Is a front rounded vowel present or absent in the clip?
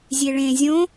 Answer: absent